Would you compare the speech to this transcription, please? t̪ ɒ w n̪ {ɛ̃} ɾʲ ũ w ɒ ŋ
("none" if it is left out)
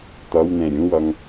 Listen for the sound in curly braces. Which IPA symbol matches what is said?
ɛ̃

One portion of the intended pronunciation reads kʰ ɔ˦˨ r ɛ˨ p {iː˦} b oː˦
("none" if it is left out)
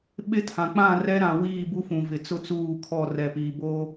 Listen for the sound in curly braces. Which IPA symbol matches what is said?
iː˨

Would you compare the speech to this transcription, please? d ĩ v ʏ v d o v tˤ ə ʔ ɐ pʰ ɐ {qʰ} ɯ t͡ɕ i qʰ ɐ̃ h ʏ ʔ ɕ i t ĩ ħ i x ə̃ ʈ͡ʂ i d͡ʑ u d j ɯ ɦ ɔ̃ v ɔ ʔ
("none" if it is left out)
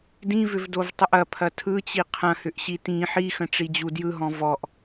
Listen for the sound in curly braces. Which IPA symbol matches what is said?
tʰ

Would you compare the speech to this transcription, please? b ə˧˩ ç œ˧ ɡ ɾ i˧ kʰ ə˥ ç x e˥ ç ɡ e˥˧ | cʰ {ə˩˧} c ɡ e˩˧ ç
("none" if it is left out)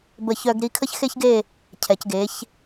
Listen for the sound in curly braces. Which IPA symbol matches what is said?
ɛ˩˧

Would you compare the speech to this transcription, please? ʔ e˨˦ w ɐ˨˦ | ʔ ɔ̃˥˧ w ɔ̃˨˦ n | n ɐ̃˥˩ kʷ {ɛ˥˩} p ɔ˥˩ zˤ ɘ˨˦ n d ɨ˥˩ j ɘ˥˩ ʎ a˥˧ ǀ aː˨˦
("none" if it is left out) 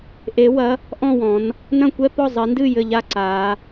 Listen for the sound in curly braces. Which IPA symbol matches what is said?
ɛ˥˧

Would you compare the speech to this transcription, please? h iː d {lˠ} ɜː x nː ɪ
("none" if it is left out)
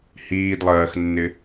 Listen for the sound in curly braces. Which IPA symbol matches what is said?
lˠ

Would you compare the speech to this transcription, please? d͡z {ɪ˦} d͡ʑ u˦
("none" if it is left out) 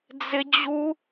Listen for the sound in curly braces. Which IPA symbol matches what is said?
ɪ˦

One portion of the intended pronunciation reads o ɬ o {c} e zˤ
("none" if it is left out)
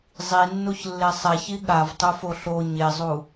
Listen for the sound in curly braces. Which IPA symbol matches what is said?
ɲ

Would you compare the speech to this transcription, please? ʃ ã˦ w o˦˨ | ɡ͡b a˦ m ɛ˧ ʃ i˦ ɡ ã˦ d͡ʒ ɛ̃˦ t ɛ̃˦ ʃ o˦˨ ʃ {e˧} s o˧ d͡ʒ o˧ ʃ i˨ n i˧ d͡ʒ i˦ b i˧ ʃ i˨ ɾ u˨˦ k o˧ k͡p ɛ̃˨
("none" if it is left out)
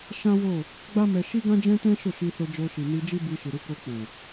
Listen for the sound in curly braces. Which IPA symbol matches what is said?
i˧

